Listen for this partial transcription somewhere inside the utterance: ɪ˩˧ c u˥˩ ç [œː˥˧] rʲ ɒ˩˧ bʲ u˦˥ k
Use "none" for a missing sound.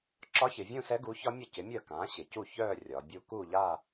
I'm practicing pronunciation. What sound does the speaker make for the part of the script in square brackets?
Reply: œː˥˧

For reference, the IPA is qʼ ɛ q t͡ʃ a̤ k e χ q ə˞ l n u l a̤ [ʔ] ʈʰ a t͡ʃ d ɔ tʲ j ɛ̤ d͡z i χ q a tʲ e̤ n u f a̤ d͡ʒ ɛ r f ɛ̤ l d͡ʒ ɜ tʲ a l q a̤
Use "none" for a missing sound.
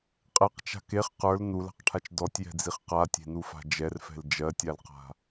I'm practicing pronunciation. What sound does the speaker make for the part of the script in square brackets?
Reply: q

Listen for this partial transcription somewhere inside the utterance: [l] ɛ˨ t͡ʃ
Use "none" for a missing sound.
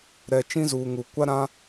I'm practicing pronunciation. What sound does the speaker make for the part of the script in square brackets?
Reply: ɾ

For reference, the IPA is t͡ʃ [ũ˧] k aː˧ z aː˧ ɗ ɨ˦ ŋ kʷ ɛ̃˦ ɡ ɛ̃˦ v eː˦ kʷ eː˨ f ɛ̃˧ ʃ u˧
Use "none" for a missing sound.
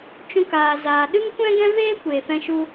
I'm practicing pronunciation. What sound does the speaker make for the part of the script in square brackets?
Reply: ũ˦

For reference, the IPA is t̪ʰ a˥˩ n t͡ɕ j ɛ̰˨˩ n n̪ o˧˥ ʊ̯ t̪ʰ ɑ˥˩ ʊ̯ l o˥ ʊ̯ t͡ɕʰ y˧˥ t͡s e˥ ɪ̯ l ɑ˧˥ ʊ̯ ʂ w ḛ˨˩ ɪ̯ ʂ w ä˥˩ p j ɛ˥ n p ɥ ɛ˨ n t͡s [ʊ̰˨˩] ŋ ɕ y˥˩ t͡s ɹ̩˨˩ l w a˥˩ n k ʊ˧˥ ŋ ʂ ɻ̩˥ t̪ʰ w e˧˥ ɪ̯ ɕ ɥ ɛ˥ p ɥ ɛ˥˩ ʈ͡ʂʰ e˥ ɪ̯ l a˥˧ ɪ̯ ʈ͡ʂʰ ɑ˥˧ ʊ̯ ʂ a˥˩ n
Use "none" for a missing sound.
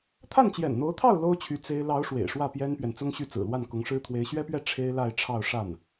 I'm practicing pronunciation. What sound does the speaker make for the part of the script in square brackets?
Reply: ʊ˥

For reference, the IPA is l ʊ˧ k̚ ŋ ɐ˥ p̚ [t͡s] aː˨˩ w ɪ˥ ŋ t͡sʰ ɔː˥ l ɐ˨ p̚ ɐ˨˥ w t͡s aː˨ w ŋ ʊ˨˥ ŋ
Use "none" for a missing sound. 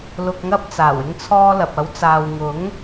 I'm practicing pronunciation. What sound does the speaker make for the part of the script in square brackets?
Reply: t͡s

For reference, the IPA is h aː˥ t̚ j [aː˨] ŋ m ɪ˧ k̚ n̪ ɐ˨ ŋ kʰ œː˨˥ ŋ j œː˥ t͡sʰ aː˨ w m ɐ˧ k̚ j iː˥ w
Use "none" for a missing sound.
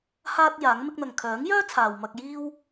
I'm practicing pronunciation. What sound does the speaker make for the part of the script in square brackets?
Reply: aː˨˥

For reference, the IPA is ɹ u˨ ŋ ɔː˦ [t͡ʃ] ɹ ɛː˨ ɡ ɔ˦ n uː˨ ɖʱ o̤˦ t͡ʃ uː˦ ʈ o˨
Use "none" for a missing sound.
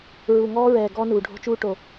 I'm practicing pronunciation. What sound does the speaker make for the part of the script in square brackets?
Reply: none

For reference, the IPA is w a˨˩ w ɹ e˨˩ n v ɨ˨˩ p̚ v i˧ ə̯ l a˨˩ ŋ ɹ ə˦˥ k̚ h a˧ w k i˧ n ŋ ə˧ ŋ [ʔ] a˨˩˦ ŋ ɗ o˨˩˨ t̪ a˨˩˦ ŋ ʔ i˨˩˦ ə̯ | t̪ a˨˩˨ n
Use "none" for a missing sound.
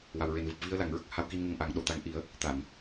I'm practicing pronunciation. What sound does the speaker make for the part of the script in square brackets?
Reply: ʔ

